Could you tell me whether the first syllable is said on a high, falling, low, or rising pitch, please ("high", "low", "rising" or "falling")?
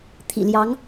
low